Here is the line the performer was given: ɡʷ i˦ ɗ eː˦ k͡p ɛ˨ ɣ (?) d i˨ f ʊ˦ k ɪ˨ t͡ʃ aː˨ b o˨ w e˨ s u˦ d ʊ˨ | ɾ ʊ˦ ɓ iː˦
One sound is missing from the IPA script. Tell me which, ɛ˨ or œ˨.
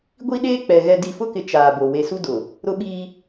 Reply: ɛ˨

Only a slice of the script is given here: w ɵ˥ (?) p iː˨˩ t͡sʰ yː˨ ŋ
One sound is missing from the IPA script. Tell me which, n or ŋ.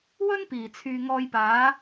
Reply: n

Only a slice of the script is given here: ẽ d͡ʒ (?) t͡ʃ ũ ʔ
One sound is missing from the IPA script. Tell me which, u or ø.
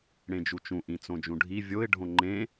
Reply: u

